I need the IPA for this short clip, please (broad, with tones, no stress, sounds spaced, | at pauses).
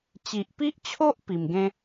t͡ɕ i˨ ʔ p i˦ ʔ t͡ɕʰ o˦ ʔ p i˨˩ m ɡ ẽ˦